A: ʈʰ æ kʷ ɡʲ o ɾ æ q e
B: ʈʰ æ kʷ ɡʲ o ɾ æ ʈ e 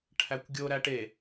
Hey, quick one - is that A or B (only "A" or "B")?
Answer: B